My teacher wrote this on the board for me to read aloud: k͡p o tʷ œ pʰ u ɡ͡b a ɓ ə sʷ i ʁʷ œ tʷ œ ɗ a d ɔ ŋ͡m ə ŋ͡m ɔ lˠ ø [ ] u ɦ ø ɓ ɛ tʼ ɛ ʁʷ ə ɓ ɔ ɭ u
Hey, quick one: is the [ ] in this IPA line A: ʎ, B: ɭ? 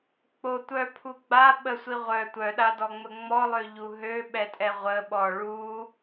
A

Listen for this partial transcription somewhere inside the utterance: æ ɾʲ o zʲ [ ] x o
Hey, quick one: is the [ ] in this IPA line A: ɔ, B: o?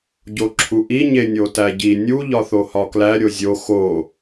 B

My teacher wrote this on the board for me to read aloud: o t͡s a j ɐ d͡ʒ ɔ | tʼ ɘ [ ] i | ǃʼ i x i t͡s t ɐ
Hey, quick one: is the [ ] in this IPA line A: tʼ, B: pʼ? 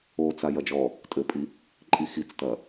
B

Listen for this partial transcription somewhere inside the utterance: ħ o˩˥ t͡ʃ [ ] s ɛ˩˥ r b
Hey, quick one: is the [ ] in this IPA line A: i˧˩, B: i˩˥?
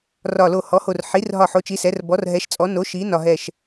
B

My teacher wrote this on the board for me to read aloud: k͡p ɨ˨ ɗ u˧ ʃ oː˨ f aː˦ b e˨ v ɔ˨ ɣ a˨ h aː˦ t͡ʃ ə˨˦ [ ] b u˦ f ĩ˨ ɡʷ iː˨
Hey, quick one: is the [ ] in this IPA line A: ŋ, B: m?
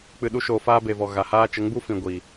A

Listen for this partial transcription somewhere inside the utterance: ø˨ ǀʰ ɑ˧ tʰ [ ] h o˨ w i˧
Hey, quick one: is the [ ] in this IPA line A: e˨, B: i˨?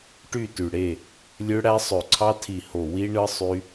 B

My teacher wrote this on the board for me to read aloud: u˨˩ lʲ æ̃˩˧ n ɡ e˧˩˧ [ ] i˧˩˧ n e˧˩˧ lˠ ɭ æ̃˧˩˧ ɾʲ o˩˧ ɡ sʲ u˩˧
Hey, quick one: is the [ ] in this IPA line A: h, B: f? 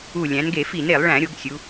B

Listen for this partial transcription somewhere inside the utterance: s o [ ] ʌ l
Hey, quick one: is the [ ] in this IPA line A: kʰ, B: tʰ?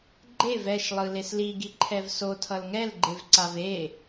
B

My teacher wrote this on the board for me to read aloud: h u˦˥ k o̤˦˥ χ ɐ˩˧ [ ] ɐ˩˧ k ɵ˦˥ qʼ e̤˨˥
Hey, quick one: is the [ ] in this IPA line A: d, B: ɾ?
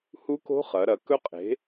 B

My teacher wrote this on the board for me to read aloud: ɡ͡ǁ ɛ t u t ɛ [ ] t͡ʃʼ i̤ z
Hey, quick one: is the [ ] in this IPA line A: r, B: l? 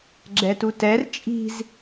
A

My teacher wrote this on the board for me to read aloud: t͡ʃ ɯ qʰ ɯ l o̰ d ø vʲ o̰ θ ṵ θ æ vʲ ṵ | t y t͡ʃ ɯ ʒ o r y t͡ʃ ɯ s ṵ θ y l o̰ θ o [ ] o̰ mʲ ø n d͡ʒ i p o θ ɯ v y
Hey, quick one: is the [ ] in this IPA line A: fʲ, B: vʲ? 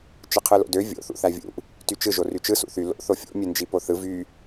A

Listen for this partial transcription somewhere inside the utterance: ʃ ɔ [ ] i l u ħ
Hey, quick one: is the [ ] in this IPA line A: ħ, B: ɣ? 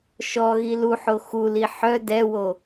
B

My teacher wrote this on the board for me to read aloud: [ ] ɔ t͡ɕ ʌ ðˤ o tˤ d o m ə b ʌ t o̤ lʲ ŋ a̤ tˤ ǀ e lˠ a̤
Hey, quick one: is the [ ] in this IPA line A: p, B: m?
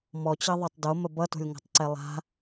B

